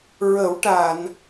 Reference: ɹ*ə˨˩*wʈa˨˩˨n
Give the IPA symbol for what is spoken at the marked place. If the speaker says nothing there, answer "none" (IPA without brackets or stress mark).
ə˨˩˦